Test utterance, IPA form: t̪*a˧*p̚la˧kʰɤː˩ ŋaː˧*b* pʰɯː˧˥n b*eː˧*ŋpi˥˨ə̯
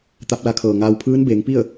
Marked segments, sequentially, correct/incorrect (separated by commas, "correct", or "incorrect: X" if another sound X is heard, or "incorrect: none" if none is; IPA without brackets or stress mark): correct, incorrect: w, incorrect: eː˩˧